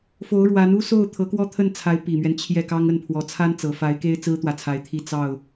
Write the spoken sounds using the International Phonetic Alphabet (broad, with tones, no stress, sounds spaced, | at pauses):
f o˧˥ ʊ̯ ɻ w a˧˥ n u˥ s o˥˩ ʊ̯ t̪ʰ ɤ˧˥ k w ɔ˥ t̪ʰ ə˥˩ n t͡sʰ a˧˥ ɪ̯ p i˨˩ m ɥ ɛ˦ n t͡ɕʰ j ɛ˥˩ k ɑ˥ ŋ ə˥˩ n pʰ w ɔ˧˥ t͡sʰ a˥ n t͡s ɤ˨˩ f a˧˥ ɪ̯ k e˥ ɪ̯ t͡s ɹ̩˥ t̪ w ä˨ t͡sʰ a˧˥ ɪ̯ t̪ʰ i˥˧ t͡s ɑ˥˩ ʊ̯